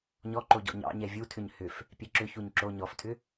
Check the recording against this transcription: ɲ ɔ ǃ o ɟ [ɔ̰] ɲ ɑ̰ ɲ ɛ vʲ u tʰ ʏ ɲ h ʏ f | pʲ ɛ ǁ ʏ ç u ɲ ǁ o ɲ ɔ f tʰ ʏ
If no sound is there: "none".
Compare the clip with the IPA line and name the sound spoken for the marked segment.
ɔ̰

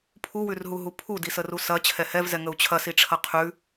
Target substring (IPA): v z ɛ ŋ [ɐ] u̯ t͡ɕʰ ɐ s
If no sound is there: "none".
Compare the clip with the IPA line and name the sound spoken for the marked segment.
ə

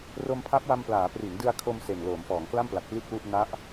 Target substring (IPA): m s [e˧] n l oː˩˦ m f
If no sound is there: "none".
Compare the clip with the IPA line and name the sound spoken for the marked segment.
e˨˩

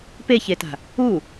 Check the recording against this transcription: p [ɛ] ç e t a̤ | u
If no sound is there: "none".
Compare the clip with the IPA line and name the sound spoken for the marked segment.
e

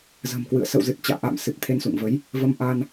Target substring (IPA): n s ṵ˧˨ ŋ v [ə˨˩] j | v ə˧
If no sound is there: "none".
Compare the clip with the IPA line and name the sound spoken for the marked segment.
ə˨˦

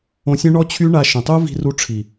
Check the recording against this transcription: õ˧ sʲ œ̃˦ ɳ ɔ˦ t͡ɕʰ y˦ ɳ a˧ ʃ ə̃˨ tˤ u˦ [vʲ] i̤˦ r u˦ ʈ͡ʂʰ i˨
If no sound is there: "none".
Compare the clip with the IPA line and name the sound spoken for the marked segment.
v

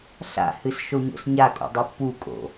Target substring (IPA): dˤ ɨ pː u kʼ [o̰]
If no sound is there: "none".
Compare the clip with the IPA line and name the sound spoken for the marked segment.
o̰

